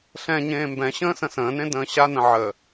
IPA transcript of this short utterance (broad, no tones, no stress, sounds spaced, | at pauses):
ɬ ɛ̃ ɲ ẽː m b ɛ̃ ɕ ə̃ː s ə̃ s ə̃ː n ẽ d ə̃ː ɕ a n ə̃ ʕ ə